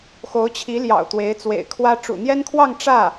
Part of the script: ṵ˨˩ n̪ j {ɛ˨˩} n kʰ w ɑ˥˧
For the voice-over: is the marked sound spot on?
no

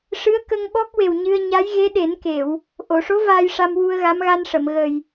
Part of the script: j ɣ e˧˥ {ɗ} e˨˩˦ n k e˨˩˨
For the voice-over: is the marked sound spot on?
yes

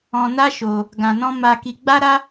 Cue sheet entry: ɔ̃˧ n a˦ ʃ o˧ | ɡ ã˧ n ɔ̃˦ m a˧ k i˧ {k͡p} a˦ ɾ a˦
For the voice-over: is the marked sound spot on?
no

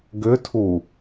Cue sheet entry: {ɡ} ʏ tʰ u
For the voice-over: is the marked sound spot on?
yes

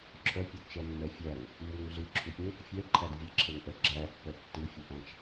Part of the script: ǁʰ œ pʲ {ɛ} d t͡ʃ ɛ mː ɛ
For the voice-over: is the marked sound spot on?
yes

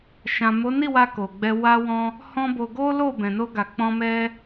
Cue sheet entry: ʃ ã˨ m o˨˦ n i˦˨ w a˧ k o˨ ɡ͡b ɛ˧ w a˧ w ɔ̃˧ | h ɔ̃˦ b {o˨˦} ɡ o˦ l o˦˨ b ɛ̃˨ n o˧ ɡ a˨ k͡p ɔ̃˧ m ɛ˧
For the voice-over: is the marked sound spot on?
no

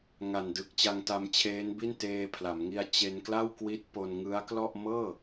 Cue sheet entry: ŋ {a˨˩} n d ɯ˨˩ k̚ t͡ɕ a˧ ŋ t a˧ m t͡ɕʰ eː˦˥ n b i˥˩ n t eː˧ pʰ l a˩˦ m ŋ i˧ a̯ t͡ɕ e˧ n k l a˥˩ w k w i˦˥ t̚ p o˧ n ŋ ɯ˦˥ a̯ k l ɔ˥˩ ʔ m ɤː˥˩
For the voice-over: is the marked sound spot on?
yes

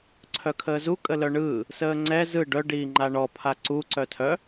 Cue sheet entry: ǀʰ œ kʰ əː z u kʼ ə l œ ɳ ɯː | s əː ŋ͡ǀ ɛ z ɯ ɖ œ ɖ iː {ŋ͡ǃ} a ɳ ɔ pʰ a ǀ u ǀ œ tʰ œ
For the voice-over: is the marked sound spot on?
yes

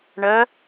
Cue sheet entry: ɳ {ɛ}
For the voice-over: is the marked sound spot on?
no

